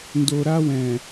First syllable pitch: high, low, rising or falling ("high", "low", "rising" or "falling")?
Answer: low